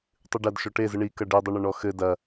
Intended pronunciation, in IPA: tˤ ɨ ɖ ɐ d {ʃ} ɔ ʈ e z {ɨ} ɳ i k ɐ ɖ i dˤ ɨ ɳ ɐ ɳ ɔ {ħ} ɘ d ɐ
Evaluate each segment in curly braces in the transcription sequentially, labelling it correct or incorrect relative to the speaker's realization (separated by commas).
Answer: correct, correct, incorrect